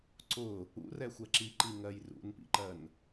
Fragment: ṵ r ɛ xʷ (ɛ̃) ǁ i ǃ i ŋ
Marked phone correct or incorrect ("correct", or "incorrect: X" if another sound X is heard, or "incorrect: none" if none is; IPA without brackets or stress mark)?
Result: incorrect: ɛ